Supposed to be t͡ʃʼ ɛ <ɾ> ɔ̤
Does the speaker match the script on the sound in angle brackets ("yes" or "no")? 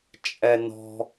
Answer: no